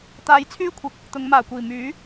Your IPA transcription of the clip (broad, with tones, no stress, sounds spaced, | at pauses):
t̪ aː˧ j t͡sʰ yː˥ kʷʰ ɪ˨˥ k̚ | t̪ ʊ˨˧ ŋ m aː˨˩ kʷ iː˨˩ m yː˨˥